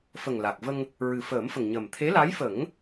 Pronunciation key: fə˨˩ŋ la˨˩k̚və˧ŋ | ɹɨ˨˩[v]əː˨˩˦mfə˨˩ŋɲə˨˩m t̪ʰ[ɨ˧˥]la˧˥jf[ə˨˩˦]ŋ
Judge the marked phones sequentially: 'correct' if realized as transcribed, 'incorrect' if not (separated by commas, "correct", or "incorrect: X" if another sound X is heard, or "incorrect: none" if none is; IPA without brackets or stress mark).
incorrect: f, incorrect: e˧˥, correct